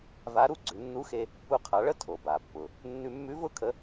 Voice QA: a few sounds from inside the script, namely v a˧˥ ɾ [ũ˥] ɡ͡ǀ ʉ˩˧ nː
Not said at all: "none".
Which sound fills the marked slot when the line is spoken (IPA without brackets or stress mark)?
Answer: u˥